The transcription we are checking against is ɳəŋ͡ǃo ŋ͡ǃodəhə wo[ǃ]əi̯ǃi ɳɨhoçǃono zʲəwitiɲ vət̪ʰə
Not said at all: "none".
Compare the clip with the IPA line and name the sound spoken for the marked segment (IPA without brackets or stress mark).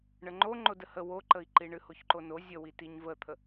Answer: ǃ